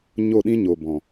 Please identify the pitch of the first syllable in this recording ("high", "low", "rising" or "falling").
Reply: falling